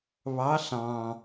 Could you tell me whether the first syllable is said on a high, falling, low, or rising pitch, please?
rising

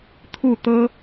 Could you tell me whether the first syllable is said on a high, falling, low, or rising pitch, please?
falling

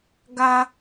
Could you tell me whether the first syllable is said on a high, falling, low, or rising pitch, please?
high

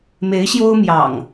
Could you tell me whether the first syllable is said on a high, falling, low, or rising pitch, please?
rising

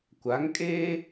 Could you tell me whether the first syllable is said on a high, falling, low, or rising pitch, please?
rising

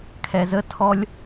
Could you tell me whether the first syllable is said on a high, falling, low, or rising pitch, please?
low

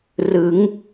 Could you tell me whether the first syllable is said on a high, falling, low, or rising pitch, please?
rising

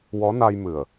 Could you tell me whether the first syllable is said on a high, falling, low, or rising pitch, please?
rising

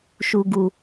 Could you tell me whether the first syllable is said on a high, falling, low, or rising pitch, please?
low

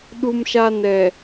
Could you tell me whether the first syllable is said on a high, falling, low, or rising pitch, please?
low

